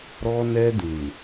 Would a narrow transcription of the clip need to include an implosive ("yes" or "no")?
no